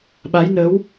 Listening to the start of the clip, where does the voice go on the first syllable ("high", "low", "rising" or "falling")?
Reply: rising